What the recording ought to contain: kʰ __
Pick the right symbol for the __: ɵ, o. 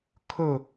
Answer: ɵ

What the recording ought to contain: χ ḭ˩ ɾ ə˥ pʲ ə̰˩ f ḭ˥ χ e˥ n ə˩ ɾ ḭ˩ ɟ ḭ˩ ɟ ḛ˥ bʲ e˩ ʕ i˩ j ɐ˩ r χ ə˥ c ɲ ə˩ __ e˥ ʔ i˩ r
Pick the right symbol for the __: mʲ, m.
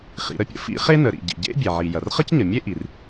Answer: mʲ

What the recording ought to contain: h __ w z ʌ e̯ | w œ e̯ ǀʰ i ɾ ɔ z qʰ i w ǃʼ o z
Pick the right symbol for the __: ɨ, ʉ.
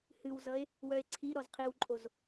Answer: ɨ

